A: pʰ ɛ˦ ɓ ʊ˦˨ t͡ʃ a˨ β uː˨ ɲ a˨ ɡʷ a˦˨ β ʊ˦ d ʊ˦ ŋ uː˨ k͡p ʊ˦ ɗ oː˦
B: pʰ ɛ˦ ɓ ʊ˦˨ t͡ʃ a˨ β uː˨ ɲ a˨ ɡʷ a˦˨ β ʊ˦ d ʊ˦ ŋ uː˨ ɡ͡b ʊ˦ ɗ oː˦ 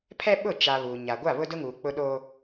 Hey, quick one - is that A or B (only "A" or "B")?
A